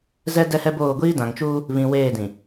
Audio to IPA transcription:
z ɛ˦ d ɛ˦ h ɛ˦ b oː˦˨ ɡʷ iː˦ d ã˨ ŋ t͡ʃ uː˦ | β ĩ˨ w eː˦˨ d ĩ˨

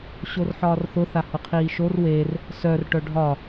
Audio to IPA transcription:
ɕ o r ħ ɒː r θ ʊ θ a h ʊ qʰ iː ʃ o r w e r | s œ r ʈ œ ɖʱ ɒ

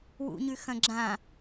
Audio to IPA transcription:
w ṵ ɲ ʉ x ɐ̃ ɡ͡ǁ ã

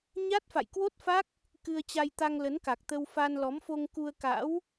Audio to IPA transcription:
ɲ a˦˥ t̚ f a̰˧˨ j k w o˦˥ t̚ f a˦˥ k̚ | k ɨ˧ ə̯ t͡ɕ a˧ j t̪ a˧ ŋ l ə˨˦ n k a˨˩ k̚ t̪ ə˧ w f a˧ n l ɔ˨˦ m f o˧ ŋ k u˧ ə̯ k a̰˧˥ w

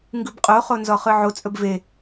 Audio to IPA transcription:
ŋ ɡ ɯ b qʼ o χ o n z ɔ χ ɯ ʕ o t͡sʼ ɵ b v e

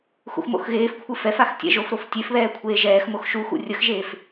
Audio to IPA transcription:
x ṵ x m o̰ x ɣ eː f kʷʰ ɨ f ɛ f a x tʲ ɛ̰ ʒ o f ɾ o f tʲ e f β ɛː kʷʰ eː ʒ ɛː x m o x ʃ u x ṵ rʲ ə x ʒ eː f

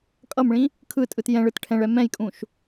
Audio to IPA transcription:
kʼ ʌ m ɭ ĩ | kʰ ɯ tʼ ɯ t j ɛ̃ ɭ ɯ t ʈʰ ɛ̃ ɭ ɛ m ɛ̃ j kʼ ũ ʃ

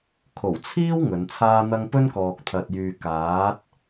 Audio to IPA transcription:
kʰ o˨˩ w t͡sʰ iː˥ w ŋ ɵ˨˧ n t͡sʰ aː˥ n̪ ɐ˥ ŋ p ɵ˥ n k ɔː˨ k̚ t̪ʰ ɐ˨ t̚ j yː˨ k aː˨˥ t̚

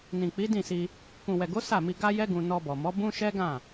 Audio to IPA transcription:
n ĩ˨ k͡p i˨˦ d ĩ˦˨ s i˧ | k ũ˨ w ɛ˨ ɡ o˨˦ s a˦˨ m i˧ ɡ a˦ j ɛ˦ ɡ ũ˧ n ɔ˧ b ɔ˨ m ɔ˨˦ b ũ˦ ʃ ɛ˦ ɡ ã˦˨

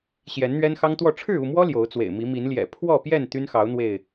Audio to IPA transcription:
ɕ j ɛ˨˦ n n̪ ɥ ɛ˦ n x ɑ˦ ŋ t̪ w ɔ˥˨ ʈ͡ʂʰ ɻ̩˥˨ u˥˨ m w ɔ˦ l j o˨˦ ʊ̯ t͡s w ḛ˨˩ ɪ̯ m i˨˦ m i˨˦ n l j ɛ̰˨˩ pʰ w ɔ˥˨ p j ɛ˥˨ n t̪ y˦ n x ɑ˨˦ ʊ̯ n̪ w e˥˨ ɪ̯

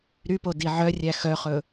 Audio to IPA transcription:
ɾ y p o d i ʕ œ rʲ æ x œ χ ɵ

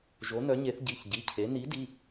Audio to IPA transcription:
ʒ o˧˥ n œ˧˥ ɲ e˧˥ θ ɟ i˧˥˧ ç ɟ i˧˥˧ cʰ e˧˥ n i˧˥ d i˧˥˧

